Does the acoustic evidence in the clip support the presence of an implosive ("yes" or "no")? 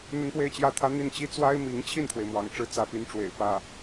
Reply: no